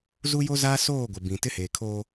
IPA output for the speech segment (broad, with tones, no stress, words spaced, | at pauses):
zu˦jo˦zaː˦ soː˦˨ɡʷɪ˨bĩ˨ tɪ˦heː˨kʰoː˦